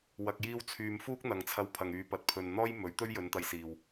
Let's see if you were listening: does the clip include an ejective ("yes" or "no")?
no